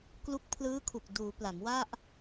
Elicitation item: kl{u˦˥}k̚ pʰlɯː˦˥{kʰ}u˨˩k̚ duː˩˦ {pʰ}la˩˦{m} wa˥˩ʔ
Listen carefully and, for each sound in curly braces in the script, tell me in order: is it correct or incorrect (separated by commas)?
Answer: correct, correct, incorrect, correct